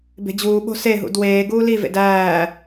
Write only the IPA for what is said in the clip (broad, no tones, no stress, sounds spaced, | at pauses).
b e̤ d͡ʑ uː ɓ o̤ s e ɦ ṵ d w eː ɡ uː l i v ḛ d æː